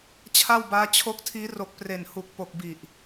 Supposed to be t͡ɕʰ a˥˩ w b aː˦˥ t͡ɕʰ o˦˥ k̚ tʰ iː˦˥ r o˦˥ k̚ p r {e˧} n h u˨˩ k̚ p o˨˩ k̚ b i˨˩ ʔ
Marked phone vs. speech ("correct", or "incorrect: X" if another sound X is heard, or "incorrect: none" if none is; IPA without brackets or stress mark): incorrect: e˨˩